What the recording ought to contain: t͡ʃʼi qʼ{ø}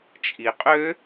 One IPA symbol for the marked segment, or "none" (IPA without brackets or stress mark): ø